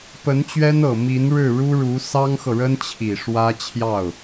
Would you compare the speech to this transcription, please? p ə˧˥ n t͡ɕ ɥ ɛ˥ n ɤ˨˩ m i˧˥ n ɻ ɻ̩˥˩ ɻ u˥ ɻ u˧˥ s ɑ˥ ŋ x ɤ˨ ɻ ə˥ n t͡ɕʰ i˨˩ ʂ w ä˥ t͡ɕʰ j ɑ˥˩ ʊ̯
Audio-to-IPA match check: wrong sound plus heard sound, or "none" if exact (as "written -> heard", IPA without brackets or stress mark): none